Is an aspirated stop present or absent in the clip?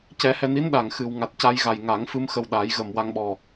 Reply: absent